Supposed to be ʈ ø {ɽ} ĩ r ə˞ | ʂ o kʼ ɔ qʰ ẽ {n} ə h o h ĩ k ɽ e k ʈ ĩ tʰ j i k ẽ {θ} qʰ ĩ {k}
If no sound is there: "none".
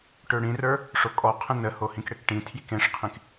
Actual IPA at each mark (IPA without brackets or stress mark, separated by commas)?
ɽ, n, ʂ, k